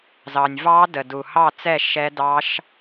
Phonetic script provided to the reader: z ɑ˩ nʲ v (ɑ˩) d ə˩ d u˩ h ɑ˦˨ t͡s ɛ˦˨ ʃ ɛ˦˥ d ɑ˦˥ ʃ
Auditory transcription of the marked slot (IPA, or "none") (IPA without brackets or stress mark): ɑ˦˥